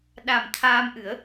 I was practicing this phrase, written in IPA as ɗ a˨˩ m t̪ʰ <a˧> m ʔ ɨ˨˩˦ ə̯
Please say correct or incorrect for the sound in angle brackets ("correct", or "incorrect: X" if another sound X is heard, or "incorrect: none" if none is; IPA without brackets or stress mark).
incorrect: aː˧